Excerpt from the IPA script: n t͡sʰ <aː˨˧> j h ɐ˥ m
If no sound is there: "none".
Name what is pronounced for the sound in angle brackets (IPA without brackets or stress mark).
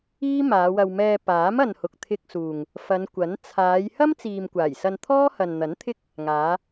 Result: aː˨˧